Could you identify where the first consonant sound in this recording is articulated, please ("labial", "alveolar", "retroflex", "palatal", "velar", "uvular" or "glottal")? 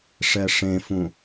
retroflex